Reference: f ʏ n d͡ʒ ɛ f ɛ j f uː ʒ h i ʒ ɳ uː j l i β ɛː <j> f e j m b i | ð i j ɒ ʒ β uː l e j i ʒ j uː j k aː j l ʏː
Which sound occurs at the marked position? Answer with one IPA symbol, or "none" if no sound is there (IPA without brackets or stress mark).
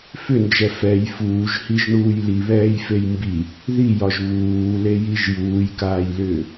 j